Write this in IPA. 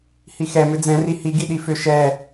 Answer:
h i x ɛ m ʏ d͡z ɛ̃ r i h i ɡ i ɗ i f ʏ ʃ ɛ

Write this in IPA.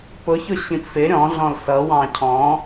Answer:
p ʊ ç ʊ ɕ ĩ p f ɪ ɾʲ ɔ̃ ɮ ɔ̃ l s ʌ w ɑ̃ cʰ ɔ̃

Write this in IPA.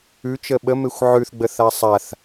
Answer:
ʉ t͡ʃ ə ɓ ə m e xʷ ʕ ʉ θ ɡ͡b ə θ a sˤ a θ

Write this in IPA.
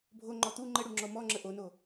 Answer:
bʱ o ŋ͡ǃ ɔ t̪ u ŋ͡ǃ ə ɽ u ŋ͡ǁ ɔ m ɔ ŋ͡ǁ ə ʔ o n o

